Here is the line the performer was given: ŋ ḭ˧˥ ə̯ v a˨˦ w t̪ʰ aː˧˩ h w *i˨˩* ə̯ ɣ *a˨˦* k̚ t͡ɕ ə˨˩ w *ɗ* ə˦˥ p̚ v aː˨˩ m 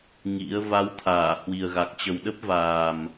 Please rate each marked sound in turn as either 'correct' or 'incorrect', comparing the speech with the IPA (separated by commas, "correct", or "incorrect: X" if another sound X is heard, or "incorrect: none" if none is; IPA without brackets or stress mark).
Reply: correct, incorrect: a˨˩, correct